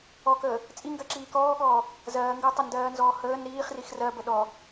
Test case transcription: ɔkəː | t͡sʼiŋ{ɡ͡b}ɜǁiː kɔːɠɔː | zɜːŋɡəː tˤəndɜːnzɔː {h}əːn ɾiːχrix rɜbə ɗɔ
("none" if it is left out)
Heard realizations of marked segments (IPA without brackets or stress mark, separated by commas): ɡ, h